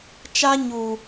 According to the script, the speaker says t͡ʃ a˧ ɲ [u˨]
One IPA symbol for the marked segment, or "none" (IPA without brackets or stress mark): u˨